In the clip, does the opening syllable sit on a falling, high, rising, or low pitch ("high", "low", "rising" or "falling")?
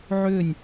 falling